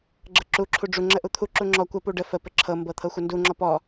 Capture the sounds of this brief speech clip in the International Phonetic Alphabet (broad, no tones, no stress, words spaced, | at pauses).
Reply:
ɡ͡ǁɤǁu ǁʰuɖ͡ʐu ŋ͡ǁəʔut̪ʰu ǁuŋ͡ǁɔ kʷə puɖə fə pəǁʰɤ mbɤt̪ʰɤxʷəndu ŋ͡ǁɔpɔ